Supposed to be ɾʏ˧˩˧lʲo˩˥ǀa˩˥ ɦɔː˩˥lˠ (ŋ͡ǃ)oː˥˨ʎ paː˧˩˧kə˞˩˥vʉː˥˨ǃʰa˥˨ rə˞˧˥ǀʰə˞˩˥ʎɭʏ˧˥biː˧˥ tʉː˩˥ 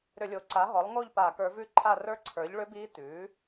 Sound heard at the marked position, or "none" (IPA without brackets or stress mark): ŋ